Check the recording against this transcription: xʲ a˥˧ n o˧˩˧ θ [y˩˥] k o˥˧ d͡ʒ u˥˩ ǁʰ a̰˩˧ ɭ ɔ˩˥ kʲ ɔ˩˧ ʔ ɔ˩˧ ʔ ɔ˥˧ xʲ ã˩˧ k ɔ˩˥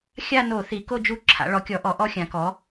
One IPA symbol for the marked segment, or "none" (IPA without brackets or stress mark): i˩˥